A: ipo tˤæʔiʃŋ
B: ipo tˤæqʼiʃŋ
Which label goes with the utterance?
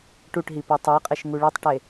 B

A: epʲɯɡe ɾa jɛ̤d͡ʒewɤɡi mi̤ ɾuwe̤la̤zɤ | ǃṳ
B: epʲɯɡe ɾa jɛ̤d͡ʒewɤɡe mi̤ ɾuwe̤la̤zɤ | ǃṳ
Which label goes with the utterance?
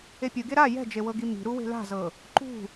A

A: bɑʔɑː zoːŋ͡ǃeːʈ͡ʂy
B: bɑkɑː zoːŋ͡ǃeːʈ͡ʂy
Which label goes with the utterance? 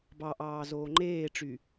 A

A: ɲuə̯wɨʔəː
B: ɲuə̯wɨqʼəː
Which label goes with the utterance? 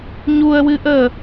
A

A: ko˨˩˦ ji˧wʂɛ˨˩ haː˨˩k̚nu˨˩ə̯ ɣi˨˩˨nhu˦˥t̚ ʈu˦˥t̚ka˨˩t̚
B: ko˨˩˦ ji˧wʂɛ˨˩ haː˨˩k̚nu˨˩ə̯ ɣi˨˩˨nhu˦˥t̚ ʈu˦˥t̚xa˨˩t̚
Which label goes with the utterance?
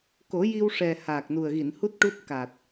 A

